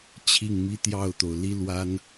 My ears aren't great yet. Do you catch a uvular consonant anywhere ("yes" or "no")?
no